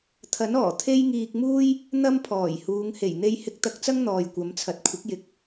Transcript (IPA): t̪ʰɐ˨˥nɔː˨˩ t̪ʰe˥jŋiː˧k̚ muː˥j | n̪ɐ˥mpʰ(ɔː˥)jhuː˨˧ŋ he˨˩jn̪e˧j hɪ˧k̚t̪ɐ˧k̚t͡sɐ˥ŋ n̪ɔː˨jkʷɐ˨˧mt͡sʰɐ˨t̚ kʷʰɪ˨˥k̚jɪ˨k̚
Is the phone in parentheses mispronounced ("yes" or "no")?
yes